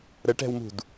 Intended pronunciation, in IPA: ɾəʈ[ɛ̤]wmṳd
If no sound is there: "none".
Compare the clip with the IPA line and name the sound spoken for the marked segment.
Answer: ɛ̤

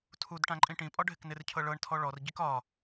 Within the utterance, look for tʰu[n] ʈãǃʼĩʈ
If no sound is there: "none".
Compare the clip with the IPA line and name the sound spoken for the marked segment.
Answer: d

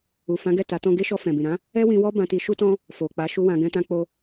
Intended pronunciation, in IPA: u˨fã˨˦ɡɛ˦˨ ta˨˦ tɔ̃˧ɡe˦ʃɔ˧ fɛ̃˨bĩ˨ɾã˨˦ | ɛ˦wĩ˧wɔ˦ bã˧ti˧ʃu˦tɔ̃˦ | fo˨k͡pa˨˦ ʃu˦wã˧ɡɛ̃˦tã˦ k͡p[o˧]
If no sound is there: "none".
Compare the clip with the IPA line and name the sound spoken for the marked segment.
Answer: o˧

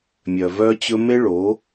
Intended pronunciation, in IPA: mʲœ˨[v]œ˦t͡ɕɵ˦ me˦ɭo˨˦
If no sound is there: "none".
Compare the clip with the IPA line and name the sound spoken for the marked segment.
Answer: v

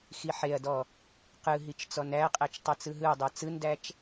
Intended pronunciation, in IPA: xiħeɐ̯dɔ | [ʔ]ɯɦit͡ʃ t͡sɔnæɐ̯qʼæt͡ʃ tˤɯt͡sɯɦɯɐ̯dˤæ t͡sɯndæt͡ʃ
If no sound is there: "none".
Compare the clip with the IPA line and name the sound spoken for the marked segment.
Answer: q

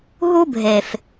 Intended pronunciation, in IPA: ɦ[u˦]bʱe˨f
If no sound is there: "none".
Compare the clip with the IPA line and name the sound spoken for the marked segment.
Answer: u˦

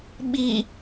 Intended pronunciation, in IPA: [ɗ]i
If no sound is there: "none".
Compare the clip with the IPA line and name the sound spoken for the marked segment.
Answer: ɓ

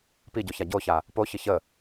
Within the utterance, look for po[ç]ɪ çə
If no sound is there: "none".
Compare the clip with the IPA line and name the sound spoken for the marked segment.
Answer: ç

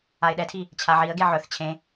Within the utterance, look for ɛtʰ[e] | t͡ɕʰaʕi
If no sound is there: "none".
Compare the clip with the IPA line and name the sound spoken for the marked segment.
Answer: i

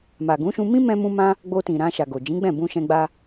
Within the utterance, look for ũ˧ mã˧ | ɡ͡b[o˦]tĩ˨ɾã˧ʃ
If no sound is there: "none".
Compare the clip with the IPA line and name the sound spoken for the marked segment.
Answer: o˧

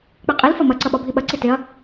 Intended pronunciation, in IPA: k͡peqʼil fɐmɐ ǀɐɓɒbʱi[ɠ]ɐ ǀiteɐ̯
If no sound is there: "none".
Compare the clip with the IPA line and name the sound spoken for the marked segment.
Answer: ɓ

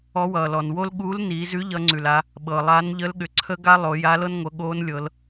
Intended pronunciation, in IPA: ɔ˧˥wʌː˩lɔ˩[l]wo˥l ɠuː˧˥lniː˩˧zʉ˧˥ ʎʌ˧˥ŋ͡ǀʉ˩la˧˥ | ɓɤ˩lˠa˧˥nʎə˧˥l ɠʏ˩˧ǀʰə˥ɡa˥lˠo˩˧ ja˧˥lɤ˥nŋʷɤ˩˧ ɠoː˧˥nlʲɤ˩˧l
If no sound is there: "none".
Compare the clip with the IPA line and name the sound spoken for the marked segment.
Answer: n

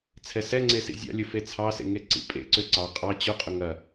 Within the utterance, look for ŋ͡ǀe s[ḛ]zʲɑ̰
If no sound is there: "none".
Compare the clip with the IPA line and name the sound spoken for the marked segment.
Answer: ḭ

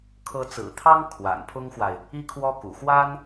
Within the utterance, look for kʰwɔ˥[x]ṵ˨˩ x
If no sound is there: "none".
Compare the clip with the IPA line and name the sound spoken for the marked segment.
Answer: k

